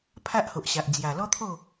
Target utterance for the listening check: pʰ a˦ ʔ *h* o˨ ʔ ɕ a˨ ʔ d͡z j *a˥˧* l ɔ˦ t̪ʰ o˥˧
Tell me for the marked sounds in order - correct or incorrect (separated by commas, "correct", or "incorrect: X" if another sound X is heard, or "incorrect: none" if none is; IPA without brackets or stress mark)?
correct, incorrect: a˨˩